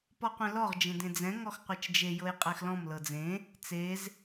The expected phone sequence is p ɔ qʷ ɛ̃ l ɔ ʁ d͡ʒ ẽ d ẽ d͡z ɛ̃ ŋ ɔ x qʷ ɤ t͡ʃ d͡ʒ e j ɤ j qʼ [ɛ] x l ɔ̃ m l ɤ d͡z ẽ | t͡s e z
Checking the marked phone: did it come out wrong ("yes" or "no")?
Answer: no